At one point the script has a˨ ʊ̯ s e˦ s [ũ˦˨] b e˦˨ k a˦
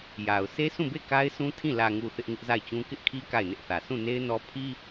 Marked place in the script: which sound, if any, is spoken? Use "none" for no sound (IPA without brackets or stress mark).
ũ˦˨